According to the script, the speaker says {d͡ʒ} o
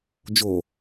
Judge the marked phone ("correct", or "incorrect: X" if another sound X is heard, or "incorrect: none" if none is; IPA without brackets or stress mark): correct